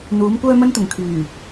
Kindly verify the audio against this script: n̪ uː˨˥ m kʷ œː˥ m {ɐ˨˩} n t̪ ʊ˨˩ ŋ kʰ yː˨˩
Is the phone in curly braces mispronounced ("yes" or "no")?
yes